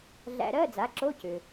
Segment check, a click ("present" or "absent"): present